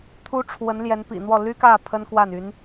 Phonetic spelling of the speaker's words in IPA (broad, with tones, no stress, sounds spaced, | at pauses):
t̪ʰ u˥ ʈ͡ʂʰ w ə˧˥ n l j ɛ˧˥ n p ḭ˨˩ n̪ w ɔ˥˩ l y˥ k ä˥˩ pʰ ə˥ n k w a˥˩ n y˧˥ n